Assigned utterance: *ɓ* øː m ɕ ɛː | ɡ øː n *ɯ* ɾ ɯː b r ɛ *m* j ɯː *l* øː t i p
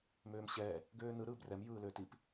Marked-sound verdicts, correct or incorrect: incorrect, correct, correct, correct

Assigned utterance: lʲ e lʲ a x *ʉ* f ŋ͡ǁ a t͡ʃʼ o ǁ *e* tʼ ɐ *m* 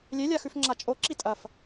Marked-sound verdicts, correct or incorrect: correct, incorrect, incorrect

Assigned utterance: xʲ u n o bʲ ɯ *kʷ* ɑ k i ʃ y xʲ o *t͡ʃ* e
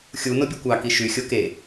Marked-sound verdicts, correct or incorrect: correct, incorrect

